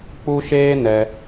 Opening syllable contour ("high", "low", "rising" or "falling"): high